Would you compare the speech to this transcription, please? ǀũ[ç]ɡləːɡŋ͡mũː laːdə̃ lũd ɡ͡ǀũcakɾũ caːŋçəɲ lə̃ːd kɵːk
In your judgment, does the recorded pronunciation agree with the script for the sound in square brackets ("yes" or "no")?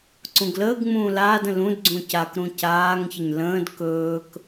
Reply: no